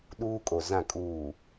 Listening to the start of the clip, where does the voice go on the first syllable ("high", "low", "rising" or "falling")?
high